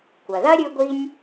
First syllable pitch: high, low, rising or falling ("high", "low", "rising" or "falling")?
low